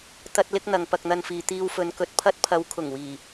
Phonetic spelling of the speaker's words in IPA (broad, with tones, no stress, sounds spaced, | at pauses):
t̪ ɐ˥ t̚ l ɪ˥ k̚ n̪ ɐ˨ ŋ p ɐ˧ k̚ n̪ ɐ˧ n f iː˨ t̪ iː˧ w f ɵ˨˧ n k ɵ˨ t̚ pʰ ɐ˥ t̚ pʰ ɐ˨˧ w kʰ ʊ˨˩ ŋ w iː˨˩